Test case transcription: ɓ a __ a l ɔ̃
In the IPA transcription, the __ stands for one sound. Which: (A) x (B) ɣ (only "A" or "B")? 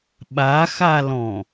A